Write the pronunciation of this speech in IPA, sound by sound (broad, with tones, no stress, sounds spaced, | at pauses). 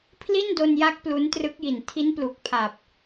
pʰ l i˥˩ n d o˧ n j a˦˥ k̚ p l u˦˥ n t r ɯ˦˥ k̚ j i˨˩ n tʰ i˦˥ n p l u˨˩ k̚ pʰ a˨˩ p̚